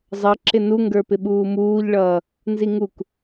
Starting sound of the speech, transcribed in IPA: zˤ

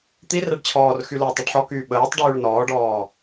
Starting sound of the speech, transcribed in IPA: t̪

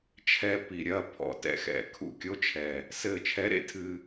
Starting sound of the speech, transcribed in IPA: t͡ʃʰ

